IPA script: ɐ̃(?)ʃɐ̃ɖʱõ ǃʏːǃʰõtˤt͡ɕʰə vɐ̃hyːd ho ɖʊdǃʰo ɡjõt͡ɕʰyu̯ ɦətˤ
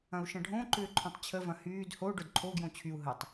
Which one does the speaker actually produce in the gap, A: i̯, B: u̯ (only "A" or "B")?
B